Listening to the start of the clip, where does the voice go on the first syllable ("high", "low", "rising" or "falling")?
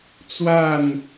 falling